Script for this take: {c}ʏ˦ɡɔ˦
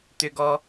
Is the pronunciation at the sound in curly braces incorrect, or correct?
incorrect